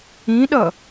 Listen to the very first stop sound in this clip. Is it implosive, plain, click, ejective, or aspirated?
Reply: implosive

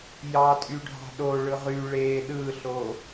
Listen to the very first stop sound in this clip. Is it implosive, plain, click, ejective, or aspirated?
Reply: ejective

